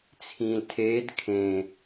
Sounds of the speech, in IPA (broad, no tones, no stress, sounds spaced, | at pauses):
t͡sʰ ĩː l tʰ eː d kʰ ẽ